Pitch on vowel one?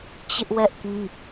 high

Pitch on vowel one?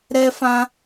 high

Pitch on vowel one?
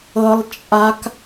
high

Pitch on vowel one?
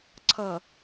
low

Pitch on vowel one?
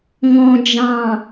low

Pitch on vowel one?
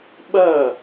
falling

